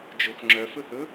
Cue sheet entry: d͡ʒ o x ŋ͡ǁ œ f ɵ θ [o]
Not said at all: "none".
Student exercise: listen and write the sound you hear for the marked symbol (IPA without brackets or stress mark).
ɵ